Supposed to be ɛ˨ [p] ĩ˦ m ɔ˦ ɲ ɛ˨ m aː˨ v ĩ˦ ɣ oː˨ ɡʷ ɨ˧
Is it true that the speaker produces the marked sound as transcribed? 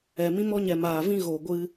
no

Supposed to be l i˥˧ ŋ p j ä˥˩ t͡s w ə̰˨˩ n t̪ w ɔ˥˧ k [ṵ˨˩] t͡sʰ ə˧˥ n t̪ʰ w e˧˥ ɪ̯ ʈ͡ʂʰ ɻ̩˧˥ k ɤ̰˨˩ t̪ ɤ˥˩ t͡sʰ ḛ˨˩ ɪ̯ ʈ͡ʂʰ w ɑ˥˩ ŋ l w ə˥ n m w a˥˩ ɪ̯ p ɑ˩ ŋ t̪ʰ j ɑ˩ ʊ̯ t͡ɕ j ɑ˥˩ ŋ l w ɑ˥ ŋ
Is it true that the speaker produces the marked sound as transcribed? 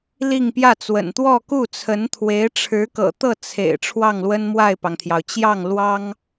no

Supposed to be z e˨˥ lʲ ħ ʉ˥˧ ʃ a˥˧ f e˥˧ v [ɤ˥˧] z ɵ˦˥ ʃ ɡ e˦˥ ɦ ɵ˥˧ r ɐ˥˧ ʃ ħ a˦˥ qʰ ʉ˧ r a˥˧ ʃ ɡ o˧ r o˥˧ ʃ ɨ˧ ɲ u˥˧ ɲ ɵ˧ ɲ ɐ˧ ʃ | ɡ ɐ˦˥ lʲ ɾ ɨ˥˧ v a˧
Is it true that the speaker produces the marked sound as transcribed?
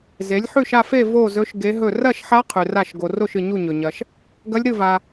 no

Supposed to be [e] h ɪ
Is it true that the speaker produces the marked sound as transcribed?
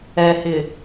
no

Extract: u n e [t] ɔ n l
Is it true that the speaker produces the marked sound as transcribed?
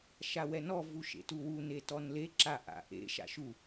yes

